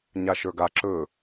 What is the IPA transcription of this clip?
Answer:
ɲ a ʃ ə˞ ɡ a ǁ ɵ

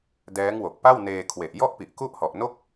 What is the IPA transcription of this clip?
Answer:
d ɛː˦˥ ŋ w o˨˩ k̚ p a˥˩ w n eː˧ kʰ w e˨˩ ʔ j ɔ˥˩ ʔ p i˨˩ ʔ k u˥˩ ʔ h ɔ˨˩ ʔ n o˥˩ k̚

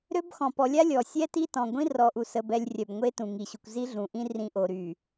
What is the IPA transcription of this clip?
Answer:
ɾ ø˦ b x ɔ̃˨ p ɔ˨ lʲ a˦ lʲ ɔ˨ sʲ ɛ˦ t i˦ t ɔ̃˨ ɡʷ ĩ˦ r ɔ˨ ʔ u˨ s ə˨ b ɛ˨ lʲ rʲ œ˨ b ŋʷ e˦ t ũ˨ ŋ i˨ ɕ u˨ kʷ z i˦ ɮ ũ˨ ʔ ĩ˦ r ĩ˨ ʔ o˨ ɾ y˨

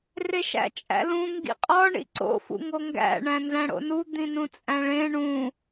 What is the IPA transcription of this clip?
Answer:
r e ʃ æ̰ t͡ʃʼ æ̰ l ũ ŋ ɡ ḭ qʼ ɒ ɳ ḭ ǀ o̰ f ṵ ŋ o ŋ ɡ æ̰ ɳ æ̃ n z æ̃ ɽ o̰ n u d̪ ĩ n ũ t͡sʼ æ̃ ɭ ẽ ɳ ũ

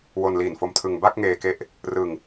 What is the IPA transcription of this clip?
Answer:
w o˧ n l iː˨˩ n f o˦˥ m tʰ ɯ˧ ŋ b a˥˩ k̚ ŋ eː˧ k e˦˥ ʔ | r ɯ˧ ŋ

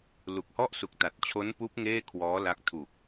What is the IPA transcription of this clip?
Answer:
l u˨˩ k̚ h ɔ˥˩ ʔ s u˨˩ k̚ t a˨˩ t̚ t͡ɕʰ o˦˥ n p uː˦˥ p̚ ŋ eː˥˩ kʰ w ɔː˦˥ l a˦˥ k̚ tʰ u˨˩ k̚

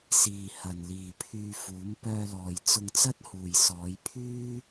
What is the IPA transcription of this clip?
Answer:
s iː˨ h ɐ˨ n l iː˨ pʰ yː˧ f uː˨˥ m p œː˧ l ɔː˨ j t͡s ʊ˧ ŋ t͡s ɐ˥ t̚ h uː˨ j s ɔː˨˧ j pʰ yː˥

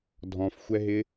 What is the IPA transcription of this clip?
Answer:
dʱ ɔ̃ f xʷ ɛ ɦ ɪ

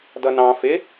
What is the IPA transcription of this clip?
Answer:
d ʌ n ɑ̃ f ɪ

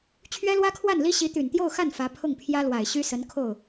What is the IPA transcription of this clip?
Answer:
t͡ɕʰ ɥ ɛ˥ l w ä˥ kʰ w a˥˩ n l i˥ ɕ i˧˥ t̪ y˨˩ n t̪ j o˥˧ ʊ̯ x a˥˩ n f ä˧˥ pʰ ʊ˥˩ ŋ pʰ j ä˥ l w a˨˩ ɪ̯ ɕ y˥ s ə˧˥ n kʰ o˥˩ ʊ̯

